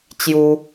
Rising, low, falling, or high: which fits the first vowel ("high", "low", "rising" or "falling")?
high